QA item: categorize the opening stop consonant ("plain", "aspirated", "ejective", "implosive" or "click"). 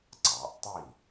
click